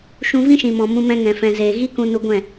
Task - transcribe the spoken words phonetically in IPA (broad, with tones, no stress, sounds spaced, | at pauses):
ʃ ũ˧ v ĩ˦ ʃ ĩ˨ m ɔ̃˨ m ũ˧ m ɛ̃˧ ŋ ɛ̃˨ f ɛ̃˨ z eː˨ ɣ i˦ k ũ˧ n u˧ ɡʷ ɛ̃˦˨